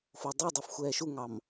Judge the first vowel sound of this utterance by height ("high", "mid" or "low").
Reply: mid